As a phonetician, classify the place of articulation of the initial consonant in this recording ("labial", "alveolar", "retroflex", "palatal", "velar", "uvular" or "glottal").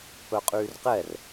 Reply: labial